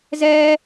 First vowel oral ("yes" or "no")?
yes